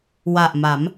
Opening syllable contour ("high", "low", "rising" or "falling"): low